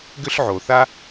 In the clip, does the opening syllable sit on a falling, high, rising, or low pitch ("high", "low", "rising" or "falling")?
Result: high